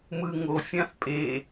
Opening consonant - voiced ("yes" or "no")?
yes